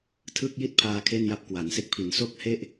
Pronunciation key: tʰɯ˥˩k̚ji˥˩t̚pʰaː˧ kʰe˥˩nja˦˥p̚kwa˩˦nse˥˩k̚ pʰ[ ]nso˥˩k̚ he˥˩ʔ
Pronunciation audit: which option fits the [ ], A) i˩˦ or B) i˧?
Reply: A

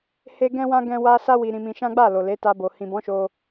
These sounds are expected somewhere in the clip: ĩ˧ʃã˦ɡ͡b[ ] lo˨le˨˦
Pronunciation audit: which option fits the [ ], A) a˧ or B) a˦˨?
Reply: B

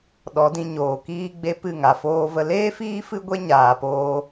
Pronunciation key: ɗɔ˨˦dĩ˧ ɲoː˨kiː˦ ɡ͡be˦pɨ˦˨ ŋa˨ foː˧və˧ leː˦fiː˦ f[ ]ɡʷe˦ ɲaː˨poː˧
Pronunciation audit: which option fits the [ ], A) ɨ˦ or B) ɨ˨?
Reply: A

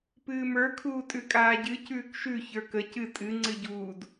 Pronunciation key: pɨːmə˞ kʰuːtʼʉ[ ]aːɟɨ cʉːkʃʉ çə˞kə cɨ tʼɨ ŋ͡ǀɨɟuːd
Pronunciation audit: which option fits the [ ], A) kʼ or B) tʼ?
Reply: A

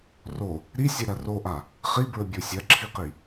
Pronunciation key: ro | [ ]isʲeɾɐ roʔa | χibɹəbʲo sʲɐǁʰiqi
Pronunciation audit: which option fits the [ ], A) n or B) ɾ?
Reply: B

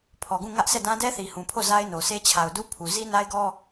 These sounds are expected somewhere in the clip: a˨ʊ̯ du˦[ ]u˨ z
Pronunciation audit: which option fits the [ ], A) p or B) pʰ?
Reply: B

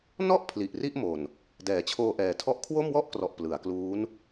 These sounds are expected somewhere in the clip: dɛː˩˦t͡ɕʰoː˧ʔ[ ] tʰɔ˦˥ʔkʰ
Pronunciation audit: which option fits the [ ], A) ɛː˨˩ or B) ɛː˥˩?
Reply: A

